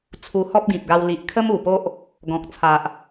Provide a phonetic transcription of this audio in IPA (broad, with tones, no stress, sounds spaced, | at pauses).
t͡sʰ u˧ h ɔ˦ p̚ ɡ ĩ˨ p̚ ɡ a˧ w l i˨ ʔ kʰ ə˦ m u˨˩ p o˦ ʔ | ɡ ɔ̃˨ k̚ t͡sʰ a˨ ʔ